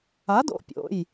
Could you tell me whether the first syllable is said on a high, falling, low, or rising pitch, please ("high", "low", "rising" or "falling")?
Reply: rising